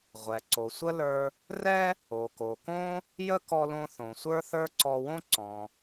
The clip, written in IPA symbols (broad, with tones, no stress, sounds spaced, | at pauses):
ʁʷ ɛ˩ ǀ o˩ sʷ ə˥ l ə˞˧ | r ɛ˥ | o˩ k o˩ k õ˥ | j ə˥ k ɔ˧ l õ˧ θ õ˩ sʷ ə˞˥ θ ə˞˥ ǀ ɔ˧ w õ˥ ǀ ɔ̃˩